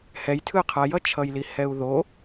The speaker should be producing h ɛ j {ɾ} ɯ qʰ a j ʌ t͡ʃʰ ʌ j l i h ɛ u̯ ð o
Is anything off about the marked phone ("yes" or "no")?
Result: yes